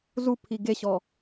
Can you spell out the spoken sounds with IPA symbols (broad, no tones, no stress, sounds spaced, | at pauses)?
z u pʰ i ɡ e ɕ ɔ